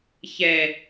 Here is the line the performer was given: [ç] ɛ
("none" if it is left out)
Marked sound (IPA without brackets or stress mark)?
ç